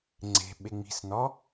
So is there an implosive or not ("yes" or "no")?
yes